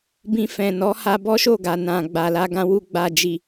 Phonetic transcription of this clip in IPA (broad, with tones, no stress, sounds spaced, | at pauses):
b ĩ˧ f ɛ̃˨ n ɔ˨˦ h a˧ b ɔ˦ ʃ o˦˨ ɡ a˨ n ã˨ ɡ͡b a˨ l a˧ ɡ ã˧ w u˧ ɡ͡b a˨ d͡ʒ i˨